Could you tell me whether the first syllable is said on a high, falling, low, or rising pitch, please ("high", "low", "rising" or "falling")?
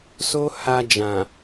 high